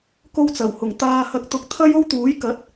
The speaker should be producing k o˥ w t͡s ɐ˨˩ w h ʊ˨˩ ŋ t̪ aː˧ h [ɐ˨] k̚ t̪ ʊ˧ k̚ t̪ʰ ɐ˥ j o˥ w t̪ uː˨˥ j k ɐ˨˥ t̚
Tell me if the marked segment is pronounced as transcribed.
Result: no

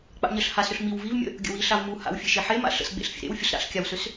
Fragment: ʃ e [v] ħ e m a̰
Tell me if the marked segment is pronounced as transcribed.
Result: no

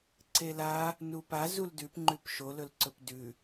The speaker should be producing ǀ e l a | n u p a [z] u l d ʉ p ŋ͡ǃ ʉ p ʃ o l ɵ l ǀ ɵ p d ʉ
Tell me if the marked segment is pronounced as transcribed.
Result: yes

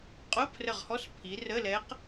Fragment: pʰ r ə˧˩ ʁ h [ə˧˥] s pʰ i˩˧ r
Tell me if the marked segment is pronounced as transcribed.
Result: no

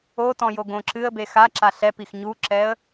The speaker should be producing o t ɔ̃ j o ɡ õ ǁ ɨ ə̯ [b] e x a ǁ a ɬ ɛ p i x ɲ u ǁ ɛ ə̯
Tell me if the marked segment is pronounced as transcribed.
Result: yes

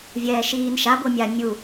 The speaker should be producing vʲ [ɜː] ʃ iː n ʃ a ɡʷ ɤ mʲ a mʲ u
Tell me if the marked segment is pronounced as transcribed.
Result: no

